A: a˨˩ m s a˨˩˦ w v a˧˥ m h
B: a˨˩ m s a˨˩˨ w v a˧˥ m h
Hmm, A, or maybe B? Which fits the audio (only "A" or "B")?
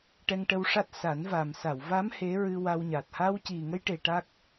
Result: B